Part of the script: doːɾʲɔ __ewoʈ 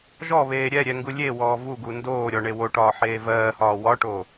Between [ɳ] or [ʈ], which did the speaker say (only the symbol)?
ɳ